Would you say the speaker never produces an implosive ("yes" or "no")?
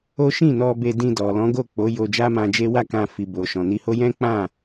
yes